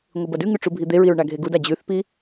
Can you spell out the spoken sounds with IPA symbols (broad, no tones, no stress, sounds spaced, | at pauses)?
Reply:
ŋʷ ɨ b ɐ d ʉ ŋ ʉ ʈ͡ʂ u bʱ i d̪ e ɹ i ɹ ɳ a ɡʱ e ɡ u d a d͡ʑ ʉ θ p i